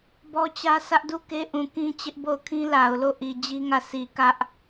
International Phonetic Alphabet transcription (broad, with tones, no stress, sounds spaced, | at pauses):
b ɔ˦ t͡ɕ ä˦ sʰ ä˦ ʔ d u˦˨ k e˦ ʔ ũ˨ k ĩ˦ t͡ɕ ɪ˦ ʔ b o˦˨ ʊ̯ kʰ ĩ˦ l a˨ ʊ̯ l o˦˨ ʔ i˨ d͡ʑ i˦ ŋ ä˦˨ sʰ i˨ k ä˦ ʔ